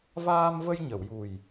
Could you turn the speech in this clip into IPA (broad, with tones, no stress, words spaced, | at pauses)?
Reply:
vaː˧mvə˧j ɲə˨˩˨wju˨˩j